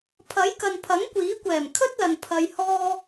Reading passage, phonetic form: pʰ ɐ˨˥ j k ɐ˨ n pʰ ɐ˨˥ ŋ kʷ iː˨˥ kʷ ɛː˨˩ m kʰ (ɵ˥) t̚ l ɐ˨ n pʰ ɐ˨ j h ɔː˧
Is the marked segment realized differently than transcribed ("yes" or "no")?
no